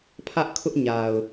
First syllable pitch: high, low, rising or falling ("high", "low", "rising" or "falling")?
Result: high